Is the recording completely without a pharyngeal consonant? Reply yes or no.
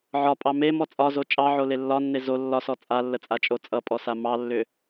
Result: no